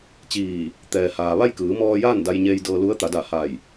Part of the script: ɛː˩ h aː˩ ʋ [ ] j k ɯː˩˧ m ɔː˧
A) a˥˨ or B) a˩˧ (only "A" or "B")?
A